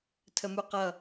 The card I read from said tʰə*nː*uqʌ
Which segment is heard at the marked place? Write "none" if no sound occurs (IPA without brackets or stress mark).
m